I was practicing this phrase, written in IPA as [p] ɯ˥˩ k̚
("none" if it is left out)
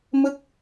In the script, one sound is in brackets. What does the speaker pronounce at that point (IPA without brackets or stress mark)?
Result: m